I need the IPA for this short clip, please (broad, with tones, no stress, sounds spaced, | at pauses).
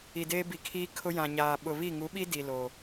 i˨ d eː˦ b i˨ kʰ iː˦ kʰ ʊ˦ j ã˨ ɲ aː˨ ɓ ʊ˨ β i˦˨ ŋ u˨˦ ɓ i˦ d i˨ l o˨